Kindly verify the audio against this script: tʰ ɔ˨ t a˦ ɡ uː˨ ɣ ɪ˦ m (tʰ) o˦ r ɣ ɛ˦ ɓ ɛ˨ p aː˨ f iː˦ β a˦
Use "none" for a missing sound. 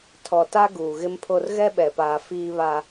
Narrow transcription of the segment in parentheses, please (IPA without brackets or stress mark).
pʰ